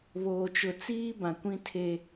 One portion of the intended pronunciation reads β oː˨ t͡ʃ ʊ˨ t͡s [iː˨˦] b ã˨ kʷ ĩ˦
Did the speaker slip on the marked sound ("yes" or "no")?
yes